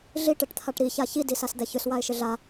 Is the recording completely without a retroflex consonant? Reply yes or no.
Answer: no